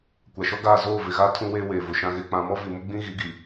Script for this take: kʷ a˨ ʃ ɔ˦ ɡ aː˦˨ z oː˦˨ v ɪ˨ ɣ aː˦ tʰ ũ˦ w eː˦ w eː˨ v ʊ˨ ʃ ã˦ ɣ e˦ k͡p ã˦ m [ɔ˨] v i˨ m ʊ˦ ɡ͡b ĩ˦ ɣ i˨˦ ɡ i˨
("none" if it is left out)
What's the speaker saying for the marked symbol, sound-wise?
ɔ˦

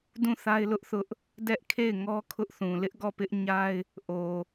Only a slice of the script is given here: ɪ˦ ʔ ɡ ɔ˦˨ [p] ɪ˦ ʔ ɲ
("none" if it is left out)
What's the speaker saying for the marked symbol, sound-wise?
p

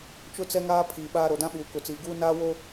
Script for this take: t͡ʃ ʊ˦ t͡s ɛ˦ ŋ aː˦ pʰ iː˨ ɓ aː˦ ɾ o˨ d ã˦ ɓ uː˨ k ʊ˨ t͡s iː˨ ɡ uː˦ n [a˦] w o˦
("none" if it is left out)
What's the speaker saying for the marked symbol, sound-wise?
aː˦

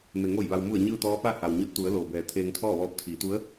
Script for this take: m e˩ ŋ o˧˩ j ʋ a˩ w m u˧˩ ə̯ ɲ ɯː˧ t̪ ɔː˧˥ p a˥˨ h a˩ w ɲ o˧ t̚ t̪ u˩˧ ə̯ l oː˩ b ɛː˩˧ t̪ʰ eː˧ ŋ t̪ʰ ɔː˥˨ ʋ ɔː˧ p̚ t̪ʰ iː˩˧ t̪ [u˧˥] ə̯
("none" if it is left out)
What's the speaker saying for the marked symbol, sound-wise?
u˧˥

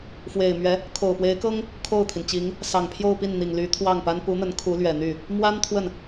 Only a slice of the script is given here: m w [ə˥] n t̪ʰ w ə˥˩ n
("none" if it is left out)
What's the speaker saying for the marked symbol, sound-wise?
a˥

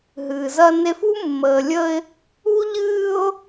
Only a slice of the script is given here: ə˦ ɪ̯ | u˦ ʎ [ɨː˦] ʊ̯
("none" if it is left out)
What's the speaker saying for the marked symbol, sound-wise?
ɨː˦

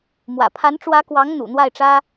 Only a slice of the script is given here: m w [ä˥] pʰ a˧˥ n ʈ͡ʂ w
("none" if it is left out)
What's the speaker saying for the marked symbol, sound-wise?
ä̰˨˩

